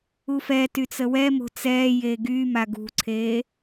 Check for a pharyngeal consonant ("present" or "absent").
absent